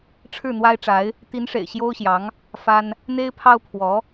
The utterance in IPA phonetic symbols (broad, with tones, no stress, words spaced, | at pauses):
ʈ͡ʂʰɻ̩˥˩n̪wa˥ɪ̯ʈ͡ʂa˧˥ɪ̯ | t̪i˧˥nʂḛ˨˩ɪ̯ ɕjo˥ʊ̯ɕjɑ˧˥ŋ | fa˥n | n̪e˥ɪ̯pʰɑ˥ʊ̯ pʰwɔ˧˥